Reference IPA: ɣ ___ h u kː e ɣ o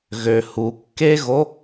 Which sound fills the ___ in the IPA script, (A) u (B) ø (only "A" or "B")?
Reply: B